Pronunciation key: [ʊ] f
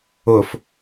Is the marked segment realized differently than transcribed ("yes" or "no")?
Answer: no